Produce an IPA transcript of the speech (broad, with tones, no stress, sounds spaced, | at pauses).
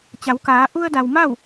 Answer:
t͡ɕ a˩˧ w k aː˩˧ ʔ u˧ ə̯ d a˩ w m a˥˨ w